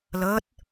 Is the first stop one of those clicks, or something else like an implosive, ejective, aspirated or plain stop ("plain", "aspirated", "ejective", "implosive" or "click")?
plain